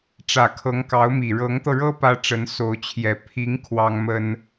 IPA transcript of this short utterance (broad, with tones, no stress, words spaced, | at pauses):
ʈ͡ʂä˨˩kʰɤ˧˥ŋkɑ˧˥ʊ̯mi˨˩ ɻɤ˧˥ŋt̪ɤ˧ɻɤ˥ pä˥ʈ͡ʂə˧˥n so˧˥ʊ̯t͡ɕʰjɛ˧˥ pʰi˧˥ŋ kʰwɑ˥ŋmə˥n